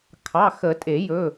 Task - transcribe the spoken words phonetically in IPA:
kʰ ɑ˩˧˩ x ə˨˩˦ tʼ e˨˩˦ j ɵ˩˧˩

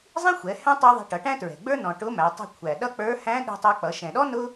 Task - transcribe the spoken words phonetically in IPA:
zˤ ĩ˥ xʷ ɛ˩˧ h ɛ̃˥ tˤ ə˞˥ ðˤ ɛ̤˧˥ ʈ ʌ˩˧ ʈ æ̃˥ t ɹ ɛ̤˩ ɡ͡b ə˞˥ n ɔ̃˩ ʈ ʊ˧˥ m æ˩˧ tˤ ɛ̤˧ kʷʰ æ˩ ɗ ʌ˥ k͡p ə˞˧˥ h æ̃˧˥ ɗ i̤˧ tˤ ʌ˧ k͡p ʌ˩˧ ʃ ɛ̃˩ ɗ ɔ˥ n ʊ˥

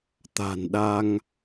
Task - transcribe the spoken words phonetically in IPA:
t̪ a̤˨˩ n ɗ a˧ ŋ

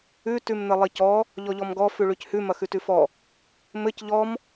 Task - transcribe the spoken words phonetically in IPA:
ʉ t ʉ m n̪ ɘ lˠ i c ɔ | ʎ ɔ ʎ ɔ m ɡ ɔ f ʉ ɭ ʉ c h ʉ m ɐ x ʉ t ʉ f ɔ | m ɘ c ʎ ɔ m

